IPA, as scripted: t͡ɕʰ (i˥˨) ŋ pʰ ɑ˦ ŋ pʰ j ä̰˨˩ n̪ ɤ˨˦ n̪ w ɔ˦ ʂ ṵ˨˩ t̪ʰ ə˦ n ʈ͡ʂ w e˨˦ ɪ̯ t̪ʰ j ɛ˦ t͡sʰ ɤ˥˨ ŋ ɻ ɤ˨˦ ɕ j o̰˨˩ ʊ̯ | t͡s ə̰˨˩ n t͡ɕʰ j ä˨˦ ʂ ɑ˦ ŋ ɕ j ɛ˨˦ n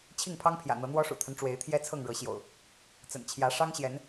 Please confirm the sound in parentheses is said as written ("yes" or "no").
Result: yes